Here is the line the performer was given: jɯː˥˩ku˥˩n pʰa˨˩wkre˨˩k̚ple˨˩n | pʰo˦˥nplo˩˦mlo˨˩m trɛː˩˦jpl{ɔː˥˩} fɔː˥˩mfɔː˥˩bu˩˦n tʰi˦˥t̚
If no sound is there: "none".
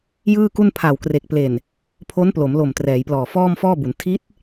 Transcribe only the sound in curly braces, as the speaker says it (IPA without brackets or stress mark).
ɔː˨˩